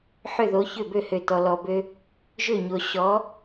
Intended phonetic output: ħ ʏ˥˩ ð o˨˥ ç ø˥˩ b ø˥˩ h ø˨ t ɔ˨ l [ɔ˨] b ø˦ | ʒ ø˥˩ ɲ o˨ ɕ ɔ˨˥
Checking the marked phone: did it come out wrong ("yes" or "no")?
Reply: no